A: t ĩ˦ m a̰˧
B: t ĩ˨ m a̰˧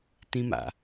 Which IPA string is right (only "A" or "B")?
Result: A